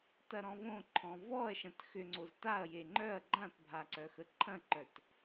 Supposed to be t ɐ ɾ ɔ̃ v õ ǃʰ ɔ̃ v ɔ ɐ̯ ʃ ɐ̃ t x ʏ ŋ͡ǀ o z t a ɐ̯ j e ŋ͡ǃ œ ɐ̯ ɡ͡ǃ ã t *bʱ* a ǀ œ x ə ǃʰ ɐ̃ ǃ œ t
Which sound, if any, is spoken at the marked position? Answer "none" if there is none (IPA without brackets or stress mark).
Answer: bʱ